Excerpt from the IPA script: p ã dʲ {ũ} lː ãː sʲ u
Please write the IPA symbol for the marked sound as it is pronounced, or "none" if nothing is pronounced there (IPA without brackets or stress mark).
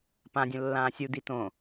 õ